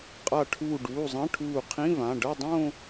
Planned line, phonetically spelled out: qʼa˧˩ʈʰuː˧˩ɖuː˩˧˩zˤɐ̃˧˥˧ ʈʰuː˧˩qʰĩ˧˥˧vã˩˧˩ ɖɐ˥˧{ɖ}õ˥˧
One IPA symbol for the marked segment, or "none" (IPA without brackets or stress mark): dˤ